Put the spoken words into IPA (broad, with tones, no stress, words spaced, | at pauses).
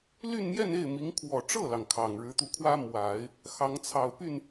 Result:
ly˥˧nmjɛ˥˧ne˥˩ɪ̯mi˧˥ŋ kʰwɔ˨˩ʈ͡ʂɤ˥˩lɑ˩ŋ kʰɑ˨˩ŋɻɻ̩˧˥t̪u˧kʰwä˥ mwa˨˩˦ɪ̯ | xɑ˧˥ŋt͡sʰɑ˨˩ʊ̯ py˥˩n